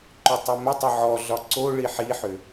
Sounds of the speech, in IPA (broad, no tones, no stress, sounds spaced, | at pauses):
ǃ ʏ tˤ ʏ m ɘ tˤ ɘ ʕ ɔ ɮ ɒ ǀ o ɭ i ħ i ħ ʏ